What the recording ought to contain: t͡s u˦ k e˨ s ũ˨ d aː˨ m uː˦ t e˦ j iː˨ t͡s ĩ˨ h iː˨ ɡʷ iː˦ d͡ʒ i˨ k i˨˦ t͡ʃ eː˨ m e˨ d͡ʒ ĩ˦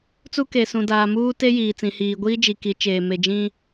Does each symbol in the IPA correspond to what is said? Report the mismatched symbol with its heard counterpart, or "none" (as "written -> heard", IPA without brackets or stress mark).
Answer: none